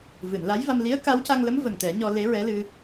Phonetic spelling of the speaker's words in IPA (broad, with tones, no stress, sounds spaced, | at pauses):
v ɨ˨˩˨ n l a˧˥ j v a˧ m l i˧˥ ə̯ k a˧˥ w c a˧ ŋ l ə˧˥ m v ə˨˩ ŋ t̪ ɛ˨˩˦ ɲ ɔ˧ l e˧˥ ɹ ɛ˧˥ l ɨ˧